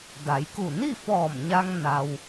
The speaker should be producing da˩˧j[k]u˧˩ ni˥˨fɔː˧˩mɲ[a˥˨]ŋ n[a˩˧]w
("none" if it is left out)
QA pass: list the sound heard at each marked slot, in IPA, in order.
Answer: k, a˧, a˧

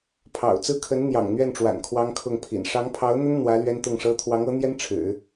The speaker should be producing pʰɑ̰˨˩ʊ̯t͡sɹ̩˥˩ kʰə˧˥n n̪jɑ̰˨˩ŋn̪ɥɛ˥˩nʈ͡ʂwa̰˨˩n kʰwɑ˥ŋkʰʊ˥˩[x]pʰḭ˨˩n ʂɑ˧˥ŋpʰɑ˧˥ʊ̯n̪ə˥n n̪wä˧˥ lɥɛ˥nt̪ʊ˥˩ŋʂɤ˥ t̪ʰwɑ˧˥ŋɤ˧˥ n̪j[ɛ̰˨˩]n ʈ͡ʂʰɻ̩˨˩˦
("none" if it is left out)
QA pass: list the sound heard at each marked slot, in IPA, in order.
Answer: ŋ, ɛ˥

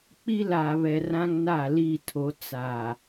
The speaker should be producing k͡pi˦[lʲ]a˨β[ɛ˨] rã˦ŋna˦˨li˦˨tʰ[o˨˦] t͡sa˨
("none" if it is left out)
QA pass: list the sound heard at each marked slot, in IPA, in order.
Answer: l, ɛ˨, o˨˦

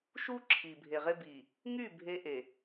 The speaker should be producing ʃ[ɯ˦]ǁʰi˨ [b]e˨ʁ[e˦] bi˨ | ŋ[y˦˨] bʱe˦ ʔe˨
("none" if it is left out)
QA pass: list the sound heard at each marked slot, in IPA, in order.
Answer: u˦, bʱ, e˦, y˦˨

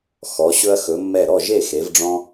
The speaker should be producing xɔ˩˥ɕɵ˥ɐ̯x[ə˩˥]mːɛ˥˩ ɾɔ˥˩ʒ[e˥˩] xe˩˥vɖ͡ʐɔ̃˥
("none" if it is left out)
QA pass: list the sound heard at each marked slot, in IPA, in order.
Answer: ɵ˩˥, e˥˩

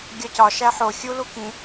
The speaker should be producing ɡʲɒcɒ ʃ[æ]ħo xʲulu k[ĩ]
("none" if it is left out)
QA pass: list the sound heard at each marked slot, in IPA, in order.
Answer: æ, ĩ

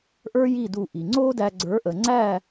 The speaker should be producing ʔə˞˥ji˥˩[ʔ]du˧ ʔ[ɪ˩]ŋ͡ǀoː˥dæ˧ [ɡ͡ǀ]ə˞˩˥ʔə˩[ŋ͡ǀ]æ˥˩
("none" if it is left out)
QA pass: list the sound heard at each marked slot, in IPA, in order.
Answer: none, i˩, ɡ͡ǀ, ŋ͡ǀ

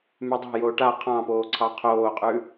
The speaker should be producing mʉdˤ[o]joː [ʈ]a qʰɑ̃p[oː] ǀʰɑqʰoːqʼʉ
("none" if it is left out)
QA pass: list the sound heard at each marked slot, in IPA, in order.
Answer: o̤, ʈ, oː

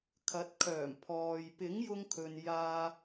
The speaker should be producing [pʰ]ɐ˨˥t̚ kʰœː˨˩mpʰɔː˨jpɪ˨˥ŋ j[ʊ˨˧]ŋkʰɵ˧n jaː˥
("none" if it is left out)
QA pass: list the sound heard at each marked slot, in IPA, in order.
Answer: kʰ, ʊ˥

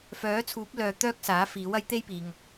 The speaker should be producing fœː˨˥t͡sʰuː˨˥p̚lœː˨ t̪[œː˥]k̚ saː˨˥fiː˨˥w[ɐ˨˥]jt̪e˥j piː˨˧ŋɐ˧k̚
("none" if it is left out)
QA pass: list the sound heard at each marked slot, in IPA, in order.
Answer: œː˥, ɐ˨˥

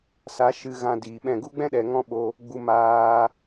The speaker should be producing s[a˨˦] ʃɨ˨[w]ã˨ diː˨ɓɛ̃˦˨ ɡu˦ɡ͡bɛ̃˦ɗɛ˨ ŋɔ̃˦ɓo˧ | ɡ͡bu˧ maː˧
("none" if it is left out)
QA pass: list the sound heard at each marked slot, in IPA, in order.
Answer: a˨˦, ɣ

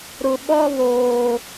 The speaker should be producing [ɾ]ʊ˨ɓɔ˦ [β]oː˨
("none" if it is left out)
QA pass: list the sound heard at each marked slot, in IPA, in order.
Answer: ɾ, β

